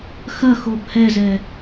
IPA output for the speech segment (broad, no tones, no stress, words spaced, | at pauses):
xɐxob hɛzɛ